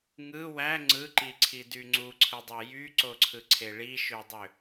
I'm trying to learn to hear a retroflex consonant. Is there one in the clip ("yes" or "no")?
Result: yes